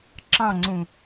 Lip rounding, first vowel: unrounded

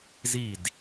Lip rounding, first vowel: unrounded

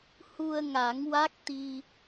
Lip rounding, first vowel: rounded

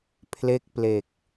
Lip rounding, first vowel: unrounded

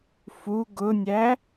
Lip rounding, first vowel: rounded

